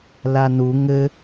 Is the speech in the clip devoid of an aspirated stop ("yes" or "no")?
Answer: yes